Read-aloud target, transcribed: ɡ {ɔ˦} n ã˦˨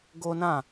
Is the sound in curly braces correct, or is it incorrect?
incorrect